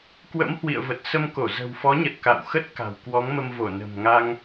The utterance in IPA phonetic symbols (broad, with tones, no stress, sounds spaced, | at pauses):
k w ə̰˧˥ m h w ḭ˧˨ ə̯ v ə˨˩ t̚ s ə˧ m k o˧˩ z ə̤˨˩ w f ɔ˨˦ ɲ ə˨˩ t̚ k a̰˧˨ w x ə˦˥ t̚ k a̤˨˩ w k w ɔ˨˦ ŋ m ə˧ m v o˧˩ n ə̤˨˩ m ŋ a˧ ŋ